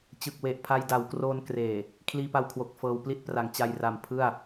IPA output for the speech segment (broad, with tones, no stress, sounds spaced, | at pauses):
t͡ɕ ɯ˨˩ k̚ w e˨˩ ʔ pʰ a˧ j d a˩˦ w k r oː˧ n k r eː˨˩ | kʰ l iː˧ p a˧ w kʰ w o˨˩ k̚ f ɤː˧ w p l i˥˩ t̚ p r a˩˦ ŋ t͡ɕ a˧ j r a˨˩ m pʰ ɯ˥˩ a̯